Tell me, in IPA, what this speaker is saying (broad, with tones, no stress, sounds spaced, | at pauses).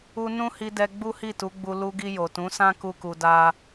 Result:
u˧ n ũ˦ h i˧ d ɛ˧ ɡ͡b u˦ h i˦˨ t u˨˦ ɡ͡b u˧ l u˧ ɡ i˧ j o˨ t ũ˨˦ s ã˦ k u˦ k u˧ d a˦